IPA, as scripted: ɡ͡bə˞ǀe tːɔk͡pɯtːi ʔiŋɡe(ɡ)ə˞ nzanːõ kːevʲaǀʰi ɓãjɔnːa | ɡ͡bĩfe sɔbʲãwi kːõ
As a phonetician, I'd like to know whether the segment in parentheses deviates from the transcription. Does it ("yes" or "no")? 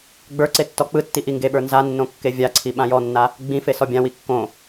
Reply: yes